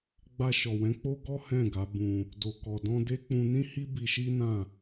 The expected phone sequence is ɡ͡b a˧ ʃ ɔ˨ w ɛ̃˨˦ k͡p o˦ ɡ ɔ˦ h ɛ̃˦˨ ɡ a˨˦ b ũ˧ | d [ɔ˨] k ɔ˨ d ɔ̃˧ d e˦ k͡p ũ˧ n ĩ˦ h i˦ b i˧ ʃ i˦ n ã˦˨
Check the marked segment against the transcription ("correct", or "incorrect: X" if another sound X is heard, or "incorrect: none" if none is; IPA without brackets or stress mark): incorrect: o˨